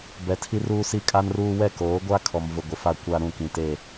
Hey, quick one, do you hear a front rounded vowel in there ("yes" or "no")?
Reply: no